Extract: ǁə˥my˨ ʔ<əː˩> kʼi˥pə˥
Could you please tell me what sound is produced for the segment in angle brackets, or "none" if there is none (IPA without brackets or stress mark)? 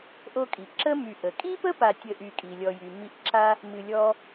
ə˩